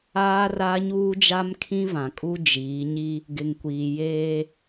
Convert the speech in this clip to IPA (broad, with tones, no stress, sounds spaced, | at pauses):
aː˦ r a˦ ɲ uː˦ d͡ʒ a˦ m kʰ ĩ˦ v ã˨ kʼ u˦ d͡ʒ iː˨˦ ɲ i˦ | ɡ ɪ˨ ŋ kʷ iː˨ j eː˦